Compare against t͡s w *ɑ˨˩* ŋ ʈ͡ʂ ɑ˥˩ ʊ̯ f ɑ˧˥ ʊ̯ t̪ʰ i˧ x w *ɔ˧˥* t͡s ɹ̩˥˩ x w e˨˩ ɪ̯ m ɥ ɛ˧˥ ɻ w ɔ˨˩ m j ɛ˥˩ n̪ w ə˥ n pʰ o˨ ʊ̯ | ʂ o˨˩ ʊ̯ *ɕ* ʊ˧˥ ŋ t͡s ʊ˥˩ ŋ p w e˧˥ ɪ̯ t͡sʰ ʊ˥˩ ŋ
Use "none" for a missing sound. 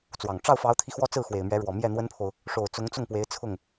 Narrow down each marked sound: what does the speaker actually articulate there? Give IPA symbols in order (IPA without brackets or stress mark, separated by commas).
ɑ˨˩, ɔ˥, t͡s